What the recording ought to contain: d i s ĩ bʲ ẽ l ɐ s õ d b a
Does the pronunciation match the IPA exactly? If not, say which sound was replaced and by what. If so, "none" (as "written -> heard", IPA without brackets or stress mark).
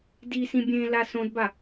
ɐ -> a